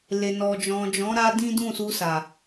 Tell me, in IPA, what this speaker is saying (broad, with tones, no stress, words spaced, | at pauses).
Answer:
le˨nɔ˨d͡ʒɔ̃˨d͡ʒɔ̃˨˦ ɾa˦dĩ˦dũ˦˨ su˧sa˨